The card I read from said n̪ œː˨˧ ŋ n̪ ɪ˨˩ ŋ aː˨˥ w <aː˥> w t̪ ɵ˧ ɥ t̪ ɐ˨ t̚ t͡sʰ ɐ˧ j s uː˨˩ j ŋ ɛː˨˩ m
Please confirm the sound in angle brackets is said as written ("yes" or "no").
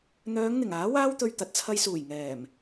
yes